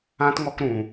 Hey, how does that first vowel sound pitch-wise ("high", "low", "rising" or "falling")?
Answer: high